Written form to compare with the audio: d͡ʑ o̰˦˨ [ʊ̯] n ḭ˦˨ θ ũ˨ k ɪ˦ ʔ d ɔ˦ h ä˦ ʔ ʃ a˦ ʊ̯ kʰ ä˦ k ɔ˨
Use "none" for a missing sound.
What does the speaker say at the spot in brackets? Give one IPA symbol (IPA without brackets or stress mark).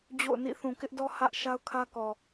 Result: ʊ̯